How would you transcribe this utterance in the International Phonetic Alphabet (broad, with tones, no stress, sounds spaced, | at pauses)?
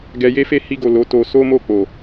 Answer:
ɡ ɛ˧ j e˦ f e˦˨ h i˧ ɡ o˨ l o˨˦ t o˧ s o˦ m o˦˨ k͡p o˨